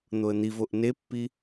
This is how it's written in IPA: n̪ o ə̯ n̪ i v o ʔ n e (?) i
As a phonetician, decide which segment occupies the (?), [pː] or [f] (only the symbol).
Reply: pː